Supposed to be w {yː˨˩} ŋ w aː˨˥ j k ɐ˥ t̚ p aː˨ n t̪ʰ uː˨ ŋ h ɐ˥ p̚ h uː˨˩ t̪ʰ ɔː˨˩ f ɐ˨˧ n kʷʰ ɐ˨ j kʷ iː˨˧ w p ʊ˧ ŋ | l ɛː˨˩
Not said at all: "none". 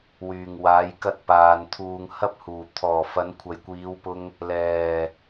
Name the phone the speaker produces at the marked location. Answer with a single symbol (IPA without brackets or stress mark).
yː˨˩